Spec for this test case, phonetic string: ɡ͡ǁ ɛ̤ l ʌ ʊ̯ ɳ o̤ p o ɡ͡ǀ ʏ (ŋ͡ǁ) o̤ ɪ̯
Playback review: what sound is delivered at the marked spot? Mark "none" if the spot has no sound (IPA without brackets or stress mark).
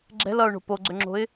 ŋ͡ǁ